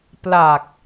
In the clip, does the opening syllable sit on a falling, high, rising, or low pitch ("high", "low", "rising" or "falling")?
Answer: low